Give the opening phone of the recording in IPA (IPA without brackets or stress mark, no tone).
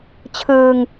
t͡ɕʰ